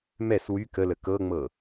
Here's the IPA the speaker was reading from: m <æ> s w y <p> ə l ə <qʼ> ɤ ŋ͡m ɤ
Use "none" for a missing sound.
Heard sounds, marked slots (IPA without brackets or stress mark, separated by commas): ɛ, k, k